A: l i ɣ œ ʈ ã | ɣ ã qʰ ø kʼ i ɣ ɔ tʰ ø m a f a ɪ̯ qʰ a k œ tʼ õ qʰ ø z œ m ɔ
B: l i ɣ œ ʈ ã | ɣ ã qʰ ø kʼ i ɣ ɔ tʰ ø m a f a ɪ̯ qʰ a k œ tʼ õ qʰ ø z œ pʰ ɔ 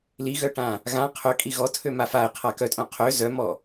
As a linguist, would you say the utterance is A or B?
A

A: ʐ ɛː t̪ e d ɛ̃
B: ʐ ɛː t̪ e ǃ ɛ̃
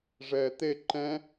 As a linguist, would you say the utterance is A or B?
B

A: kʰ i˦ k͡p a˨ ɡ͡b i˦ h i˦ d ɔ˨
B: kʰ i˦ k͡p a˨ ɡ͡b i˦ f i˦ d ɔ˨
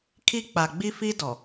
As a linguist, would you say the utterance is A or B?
B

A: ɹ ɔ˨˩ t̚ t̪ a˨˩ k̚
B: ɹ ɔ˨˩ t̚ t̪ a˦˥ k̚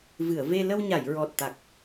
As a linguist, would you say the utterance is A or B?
A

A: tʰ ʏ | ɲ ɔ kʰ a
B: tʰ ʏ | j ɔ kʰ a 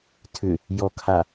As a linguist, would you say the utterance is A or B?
B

